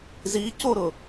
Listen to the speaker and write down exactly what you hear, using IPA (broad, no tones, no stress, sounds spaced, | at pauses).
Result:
z i c o ɾ ʊ